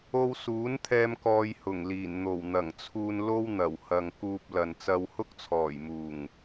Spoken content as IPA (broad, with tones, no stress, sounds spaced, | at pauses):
o˧ w s uː˨˥ n t̪ʰ ɛː˧ m k ɔː˧ j h ʊ˨˩ ŋ l iː˨˩ n n̪ o˨˩ w n̪ ɐ˨˩ ŋ t͡sʰ uː˧ n l o˥ w n̪ ɐ˨˩ w h ɐ˨ ŋ k uː˧ p̚ l ɐ˨ n t͡s ɐ˧ w h ʊ˥ k̚ t͡sʰ ɔː˨˩ j m uː˨˩ ŋ